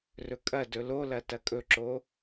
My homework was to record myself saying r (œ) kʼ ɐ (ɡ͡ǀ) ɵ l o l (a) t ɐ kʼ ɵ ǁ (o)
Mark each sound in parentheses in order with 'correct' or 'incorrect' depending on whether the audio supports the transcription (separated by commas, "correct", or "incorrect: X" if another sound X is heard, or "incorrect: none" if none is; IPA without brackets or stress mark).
incorrect: ɵ, incorrect: d, incorrect: ɐ, correct